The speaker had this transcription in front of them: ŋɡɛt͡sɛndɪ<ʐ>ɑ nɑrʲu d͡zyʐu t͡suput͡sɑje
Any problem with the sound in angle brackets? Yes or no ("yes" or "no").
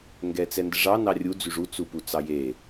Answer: no